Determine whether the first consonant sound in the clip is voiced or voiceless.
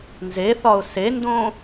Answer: voiced